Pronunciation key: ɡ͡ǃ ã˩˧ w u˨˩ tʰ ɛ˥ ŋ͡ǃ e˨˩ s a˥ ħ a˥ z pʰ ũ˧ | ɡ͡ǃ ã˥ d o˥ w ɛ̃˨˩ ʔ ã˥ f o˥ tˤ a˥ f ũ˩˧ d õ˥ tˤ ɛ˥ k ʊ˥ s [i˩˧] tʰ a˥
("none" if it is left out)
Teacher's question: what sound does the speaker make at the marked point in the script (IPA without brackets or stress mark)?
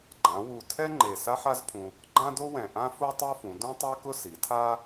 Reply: i˩˧